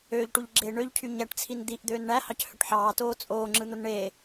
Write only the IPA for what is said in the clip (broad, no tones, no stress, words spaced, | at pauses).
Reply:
øːʎʈuʎɡ͡ǁeː ɳøʎcʰy ɲæʈt͡sʰin d̪iʔd̪øːn ɳæhɑchøʈ ħɑːtoː t͡sʼoːŋ͡ǁɯn̪on ɳeː